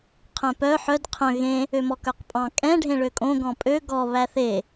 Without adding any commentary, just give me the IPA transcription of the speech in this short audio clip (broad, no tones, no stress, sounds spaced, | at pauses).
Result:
qʰ œ̃ p œ ħ œ d qʰ œ̃ ɣ ẽ | ø m ɔ k œ q pʼ ɑ̃ kʼ ɛ̃ ɖʱ ẽ ɭ ø kʼ õ ɡ ɔ̃ pʼ ø ɡ ɔ β æ θ e